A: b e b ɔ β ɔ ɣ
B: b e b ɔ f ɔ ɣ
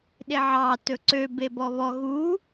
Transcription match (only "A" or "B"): A